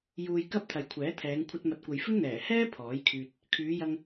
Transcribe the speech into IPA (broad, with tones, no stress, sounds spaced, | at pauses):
j uː˧ j k ɐ˥ p̚ t̪ʰ ɐ˨ j kʷʰ ɛː˨˥ t̪ʰ ɛː˨˧ ŋ kʷʰ ɐ˧ t̚ m ɐ˨ t̚ kʷ ɐ˨ j f ɪ˥ ŋ n̪ ɛː˨˩ h ɛː˥ pʰ ɔː˨˥ j kʰ yː˧ t̚ | kʰ yː˨˧ j ɐ˧ ŋ